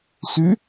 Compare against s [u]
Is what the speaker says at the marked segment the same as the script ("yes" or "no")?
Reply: no